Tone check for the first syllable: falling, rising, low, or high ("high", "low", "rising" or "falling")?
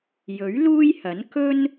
rising